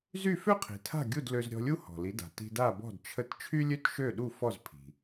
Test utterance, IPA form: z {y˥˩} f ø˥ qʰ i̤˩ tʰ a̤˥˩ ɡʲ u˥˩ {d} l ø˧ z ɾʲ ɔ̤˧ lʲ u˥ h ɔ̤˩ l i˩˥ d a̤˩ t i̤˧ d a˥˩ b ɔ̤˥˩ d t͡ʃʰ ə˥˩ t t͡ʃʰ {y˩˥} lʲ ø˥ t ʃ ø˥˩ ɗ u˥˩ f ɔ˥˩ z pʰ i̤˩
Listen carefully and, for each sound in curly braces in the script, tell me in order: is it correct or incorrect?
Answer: correct, correct, incorrect: y˥

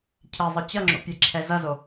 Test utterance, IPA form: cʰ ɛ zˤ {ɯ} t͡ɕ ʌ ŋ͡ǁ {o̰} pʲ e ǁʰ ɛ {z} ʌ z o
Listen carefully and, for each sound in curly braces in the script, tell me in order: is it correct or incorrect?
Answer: correct, correct, correct

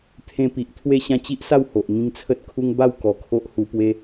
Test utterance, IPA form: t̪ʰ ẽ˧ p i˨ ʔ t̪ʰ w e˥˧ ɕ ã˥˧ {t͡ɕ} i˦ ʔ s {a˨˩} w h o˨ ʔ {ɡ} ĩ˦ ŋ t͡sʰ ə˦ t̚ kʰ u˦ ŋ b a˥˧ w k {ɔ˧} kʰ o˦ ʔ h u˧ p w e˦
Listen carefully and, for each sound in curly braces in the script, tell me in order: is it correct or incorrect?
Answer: correct, incorrect: a˥˧, incorrect: ŋ, incorrect: ɔ˨˩

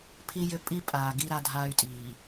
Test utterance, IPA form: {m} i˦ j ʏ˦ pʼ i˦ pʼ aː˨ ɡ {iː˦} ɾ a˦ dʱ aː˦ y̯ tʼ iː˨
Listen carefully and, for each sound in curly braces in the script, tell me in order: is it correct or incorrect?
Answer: incorrect: pʰ, incorrect: i˦

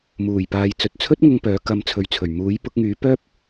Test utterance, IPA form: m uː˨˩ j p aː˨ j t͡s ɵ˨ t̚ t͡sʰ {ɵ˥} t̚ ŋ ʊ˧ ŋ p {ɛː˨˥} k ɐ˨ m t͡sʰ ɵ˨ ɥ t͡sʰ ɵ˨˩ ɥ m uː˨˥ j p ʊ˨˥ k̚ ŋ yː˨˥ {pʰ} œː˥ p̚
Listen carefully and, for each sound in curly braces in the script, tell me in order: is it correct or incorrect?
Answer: correct, incorrect: œː˨˥, incorrect: p

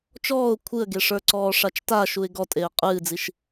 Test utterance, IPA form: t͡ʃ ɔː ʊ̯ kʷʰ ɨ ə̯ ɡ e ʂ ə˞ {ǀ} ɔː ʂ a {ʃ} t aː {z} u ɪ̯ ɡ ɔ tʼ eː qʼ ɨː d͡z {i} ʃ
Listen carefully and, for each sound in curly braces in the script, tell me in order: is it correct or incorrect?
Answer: correct, incorrect: t͡ʃ, incorrect: ʃ, correct

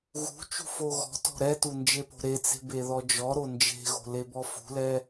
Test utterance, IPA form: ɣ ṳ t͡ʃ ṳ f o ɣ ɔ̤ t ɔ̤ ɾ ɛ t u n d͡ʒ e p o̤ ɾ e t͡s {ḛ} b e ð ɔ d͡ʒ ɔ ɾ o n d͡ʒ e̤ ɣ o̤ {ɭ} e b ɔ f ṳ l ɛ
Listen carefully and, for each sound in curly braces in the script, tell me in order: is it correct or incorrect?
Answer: incorrect: e̤, incorrect: l

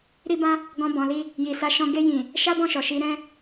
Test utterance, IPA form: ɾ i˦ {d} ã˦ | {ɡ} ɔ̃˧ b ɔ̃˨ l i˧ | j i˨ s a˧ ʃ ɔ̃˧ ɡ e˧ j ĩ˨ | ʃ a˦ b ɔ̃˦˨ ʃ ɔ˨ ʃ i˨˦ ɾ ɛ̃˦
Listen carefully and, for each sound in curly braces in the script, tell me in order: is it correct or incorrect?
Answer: incorrect: b, correct

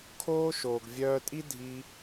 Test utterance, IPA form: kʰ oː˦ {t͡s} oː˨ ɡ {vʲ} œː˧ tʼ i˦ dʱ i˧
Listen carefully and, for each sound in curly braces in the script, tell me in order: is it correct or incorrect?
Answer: incorrect: ʃ, correct

